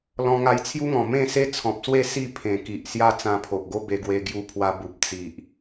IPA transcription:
lɔ̃˧ŋa˧jt͡sʰju˦ŋɔ̃˨˩ mẽ˥˧se˦t͡sʰɔ̃˨p̚swe˥˧ si˥˧ pʰẽ˨˩ki˨ʔ sja˦t͡sã˧pʰo˨ʔɡo˦ be˧ɡwe˧ ɡju˧pʰwa˧ bu˨p̚ t͡si˨ʔ

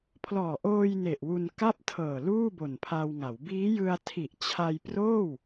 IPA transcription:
pʰlɔː˨˩ʔoː˧j ne˨˩ʔwu˧n ka˥˩p̚ tʰɤː˨˩ luː˥˩bo˨˩npʰa˧wŋa˩˦w biː˦˥jɯ˧a̯ tʰi˨˩ʔ t͡ɕʰa˧jproː˥˩w

